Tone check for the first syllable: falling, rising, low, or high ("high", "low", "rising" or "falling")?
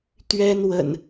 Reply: high